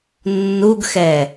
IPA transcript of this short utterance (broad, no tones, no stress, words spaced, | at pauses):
nːuɡxɛ